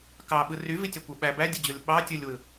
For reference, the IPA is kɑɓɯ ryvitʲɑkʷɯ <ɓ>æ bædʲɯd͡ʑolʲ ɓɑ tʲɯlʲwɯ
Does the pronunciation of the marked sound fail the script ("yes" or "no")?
no